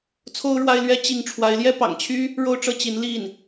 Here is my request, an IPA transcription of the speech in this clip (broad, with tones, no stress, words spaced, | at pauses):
t͡sʰo˥ʊ̯ɻwa˥ɪ̯lɥɛ˥ t͡ɕi˥˩ŋ ʈ͡ʂʰwa˧˥ɪ̯ljɛ˥pɑ̰˨˩ŋt͡ɕʰy˥ | ɻo˥˧ʊ̯ʈ͡ʂɤ˥˩t͡ɕi˧˥n li˥˩n